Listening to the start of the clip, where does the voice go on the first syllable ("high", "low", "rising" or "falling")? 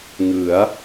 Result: rising